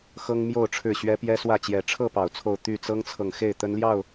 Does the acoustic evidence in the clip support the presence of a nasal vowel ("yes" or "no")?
no